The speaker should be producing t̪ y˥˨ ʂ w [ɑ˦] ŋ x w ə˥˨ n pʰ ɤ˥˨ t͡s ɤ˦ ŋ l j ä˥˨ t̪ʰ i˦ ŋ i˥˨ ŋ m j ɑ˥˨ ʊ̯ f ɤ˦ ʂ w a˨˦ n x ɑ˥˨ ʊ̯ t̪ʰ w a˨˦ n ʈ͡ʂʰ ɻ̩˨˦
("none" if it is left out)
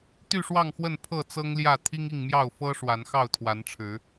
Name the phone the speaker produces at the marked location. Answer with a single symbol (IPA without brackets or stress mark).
ɑ˥˨